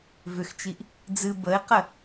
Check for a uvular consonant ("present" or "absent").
present